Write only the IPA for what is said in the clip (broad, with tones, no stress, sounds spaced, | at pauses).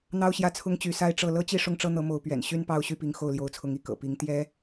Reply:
n̪ ɑ˥ ʊ̯ ɕ j ä˥˩ t͡sʰ ʊ˥ ŋ t͡ɕ y˧˥ s a˥ ɪ̯ ʈ͡ʂ ɤ˥˩ l ɤ˥ t͡ɕ i˥˧ ʂ ʊ˥˩ ŋ ʈ͡ʂ ɤ˥ n̪ ɤ˧˥ m o˧˥ ʊ̯ p ɥ ɛ̰˨˩ n ɕ y˥ n p ɑ˥˧ ʊ̯ ɕ y˥˩ p i˧˥ ŋ x o˥˩ ʊ̯ l j o˧˥ ʊ̯ t͡sʰ ʊ˧˥ ŋ i˧˥ k ɤ̰˨˩ p i˧˥ ŋ t̪ j ɛ˥